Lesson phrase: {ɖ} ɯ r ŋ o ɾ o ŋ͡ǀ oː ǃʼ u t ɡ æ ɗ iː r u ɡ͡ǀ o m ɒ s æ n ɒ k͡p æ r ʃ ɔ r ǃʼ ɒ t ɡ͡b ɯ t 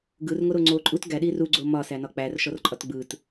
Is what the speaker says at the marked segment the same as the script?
no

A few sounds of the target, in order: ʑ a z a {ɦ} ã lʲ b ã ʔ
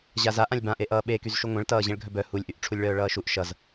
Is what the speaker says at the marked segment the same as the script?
no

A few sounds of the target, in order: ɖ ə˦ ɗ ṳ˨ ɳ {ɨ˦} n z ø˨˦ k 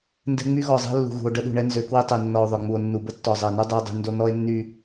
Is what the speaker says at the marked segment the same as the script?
no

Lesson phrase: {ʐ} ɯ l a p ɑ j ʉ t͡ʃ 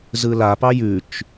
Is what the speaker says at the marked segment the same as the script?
no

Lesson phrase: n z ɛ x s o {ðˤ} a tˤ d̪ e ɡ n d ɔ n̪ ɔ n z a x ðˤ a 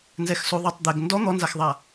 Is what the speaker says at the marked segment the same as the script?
yes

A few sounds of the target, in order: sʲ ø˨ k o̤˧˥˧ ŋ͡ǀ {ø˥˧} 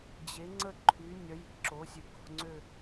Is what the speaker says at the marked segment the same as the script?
yes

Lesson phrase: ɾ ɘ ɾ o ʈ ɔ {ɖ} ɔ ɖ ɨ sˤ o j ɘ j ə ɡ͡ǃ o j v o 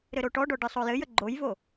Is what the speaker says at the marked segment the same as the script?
yes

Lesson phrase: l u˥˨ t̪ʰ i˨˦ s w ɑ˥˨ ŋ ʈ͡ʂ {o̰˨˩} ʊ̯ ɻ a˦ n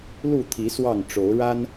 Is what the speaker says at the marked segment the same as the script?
no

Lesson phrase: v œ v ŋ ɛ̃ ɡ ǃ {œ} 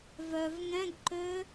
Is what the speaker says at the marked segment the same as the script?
no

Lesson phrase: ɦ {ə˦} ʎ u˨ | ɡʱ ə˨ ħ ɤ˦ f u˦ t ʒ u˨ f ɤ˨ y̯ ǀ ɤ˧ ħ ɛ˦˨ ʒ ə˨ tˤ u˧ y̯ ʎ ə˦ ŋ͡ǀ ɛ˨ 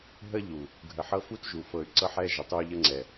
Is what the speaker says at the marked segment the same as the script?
yes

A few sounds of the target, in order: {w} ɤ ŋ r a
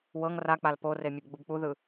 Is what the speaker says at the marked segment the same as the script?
yes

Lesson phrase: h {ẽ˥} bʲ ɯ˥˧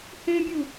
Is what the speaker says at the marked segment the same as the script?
yes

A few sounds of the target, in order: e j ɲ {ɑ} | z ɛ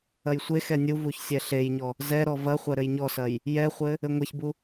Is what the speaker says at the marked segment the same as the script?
no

